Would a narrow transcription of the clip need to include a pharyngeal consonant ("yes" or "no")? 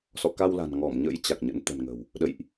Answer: no